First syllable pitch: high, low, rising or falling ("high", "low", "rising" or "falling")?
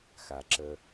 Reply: low